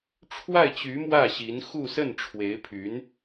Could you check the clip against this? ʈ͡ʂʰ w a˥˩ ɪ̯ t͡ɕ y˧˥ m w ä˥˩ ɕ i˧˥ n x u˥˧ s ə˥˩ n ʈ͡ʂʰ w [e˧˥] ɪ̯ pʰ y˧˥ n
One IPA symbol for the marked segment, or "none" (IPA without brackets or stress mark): e˧˥